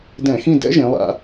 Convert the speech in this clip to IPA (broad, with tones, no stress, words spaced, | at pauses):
dɛ̃˧˩˧xĩ˦˨ dɛ̰˦˥ʒẽ˩˧lˠa̰˩˧